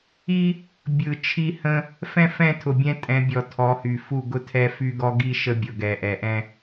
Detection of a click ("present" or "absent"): absent